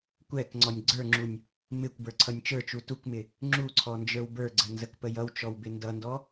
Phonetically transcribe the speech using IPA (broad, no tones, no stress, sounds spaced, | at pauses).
kʷ ɛ k ŋ͡ǀ ɔ nʲ ɡ͡ǀ ə˞ ŋ͡ǁ u nʲ | m ɪ kʷ b ə˞ ǀʰ ʌ nʲ t͡ʃ ə˞ t͡ʃ u t u k m ɪ | ŋ͡ǁ u ǀʰ ɔ n d͡ʒ ə˞ w b ə˞ ɡ͡ǀ ə n z ə k p ə j ʌ w t͡ʃ ɔ w b ɪ n d ʌ n d ɔ